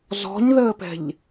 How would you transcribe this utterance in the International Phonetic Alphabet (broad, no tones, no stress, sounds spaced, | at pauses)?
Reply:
z ɔ̤ ɲ ð əː p ɛ̤ ʎ